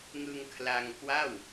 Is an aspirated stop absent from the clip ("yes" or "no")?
no